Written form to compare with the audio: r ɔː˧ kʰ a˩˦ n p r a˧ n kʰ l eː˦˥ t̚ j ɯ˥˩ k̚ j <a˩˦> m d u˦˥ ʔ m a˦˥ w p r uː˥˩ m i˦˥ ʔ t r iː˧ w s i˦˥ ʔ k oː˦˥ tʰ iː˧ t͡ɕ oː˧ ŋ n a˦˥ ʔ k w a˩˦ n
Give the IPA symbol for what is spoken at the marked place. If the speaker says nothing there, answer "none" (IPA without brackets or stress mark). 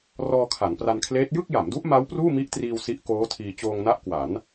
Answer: a˩˦